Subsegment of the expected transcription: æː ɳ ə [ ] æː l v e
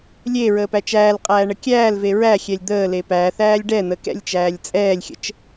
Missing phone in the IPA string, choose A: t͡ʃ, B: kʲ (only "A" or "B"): B